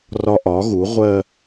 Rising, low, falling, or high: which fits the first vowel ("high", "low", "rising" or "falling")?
high